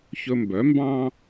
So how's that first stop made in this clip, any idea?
plain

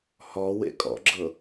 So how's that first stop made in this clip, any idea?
ejective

